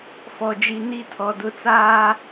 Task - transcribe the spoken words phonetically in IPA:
fɔ˨d͡ʒi˨ ni˦tʰɔ˨dʊ˦t͡saː˦

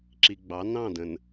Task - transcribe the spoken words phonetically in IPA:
ǁi˨ɡ͡bɑ˨˦ nɑ̃˦˨də̃˨n

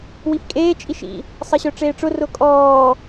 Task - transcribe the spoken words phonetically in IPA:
wifkʼeː t͡ʃʼiʃḭ | sˤɐɕœʈ͡ʂeːʈ͡ʂʊ rʊkʼɔː

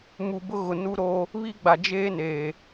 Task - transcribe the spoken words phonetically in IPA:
mu˨bʊ˦ɣʊ˨ nu˦ɾo˦ | βi˦ɡ͡ba˨ d͡ʒeː˦neː˨

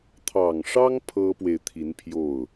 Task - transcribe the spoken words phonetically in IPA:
t̪ʰɑ˨˩ŋʂɑ˥ŋ pʰɤ˥pwe˨ɪ̯ t̪ʰi˧˥npʰjo˥˩ʊ̯

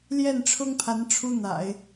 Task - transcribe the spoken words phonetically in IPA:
ljɛ˥˩nʈ͡ʂʰʊ˥ŋpʰa˧˥n ʈ͡ʂʰu˥n̪a̰˨˩˦ɪ̯

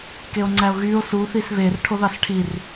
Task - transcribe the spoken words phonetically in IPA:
keo̯ŋ͡ǀæo̯ɣyːo̯ su θisβer ʈʰoðɑsʈʰir

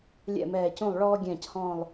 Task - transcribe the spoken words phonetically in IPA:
lʲɛ̰˥˩mɛː˧˩cũ˥˩lˠ ɭɔː˦ ɡʲɛ̃ː˧˩chɔ̃ː˧˩lˠ

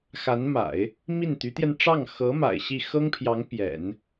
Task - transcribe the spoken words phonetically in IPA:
xa˧˥nma̰˨˩˦ɪ̯ | mi˥˩nt̪y˧˥t̪jɛ˧n ʈ͡ʂɑ˥˩ŋ xɤ˧˥ ma̰˨˩ɪ̯ɕi˥˩ xɤ˥ŋpʰjɑ˧˥ŋ pjɛ̰˨˩˦n

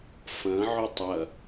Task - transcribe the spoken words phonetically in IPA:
fɐ̃ʕʏ tˤɐ

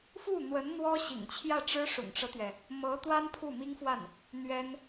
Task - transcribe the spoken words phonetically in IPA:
fu˥˩n̪wə˧˥n n̪wɔ˥ɕḭ˨˩ŋt͡ɕʰjä˥˩ʈ͡ʂɻ̩˥ ʂʊ̰˨˩ŋʈ͡ʂɤ˦t̪ɥɛ˩ | mɤ˧˥t̪wa˥n pʰu˥˩mi˥ŋfwa˥˩n | n̪ɥɛ˥n

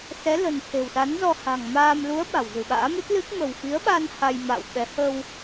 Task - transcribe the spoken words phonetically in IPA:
sɛ˨˦lə̤˨˩n t̪ʰe̤˨˩wsa˨˦nzɔ˧ ha̤˨˩ŋmaː˧m lu˨˦ə̯ ɓa̤˨˩wzɨ̤˨˩ɓa̰ː˧˥ mɨ˦˥t̚lɨ˦˥k̚ mə̤˨˩wfi˨˦ə̯ɓa˧n ha˧j ma̰ː˧˨wɓɛ˨˦ hə˧w

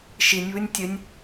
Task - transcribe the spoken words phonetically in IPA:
ʃinʲβɨnʲ tʲɘnʲ

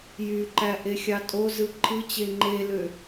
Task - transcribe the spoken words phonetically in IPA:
jyǃæʔexʲɑ tʼozɯ ǃʰɯt͡ɕe ŋ͡ǃelø

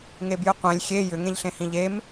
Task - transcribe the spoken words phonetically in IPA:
ŋebjɨqʷẽlʲ xʲe jʏ ŋẽʎɬẽhĩʎem

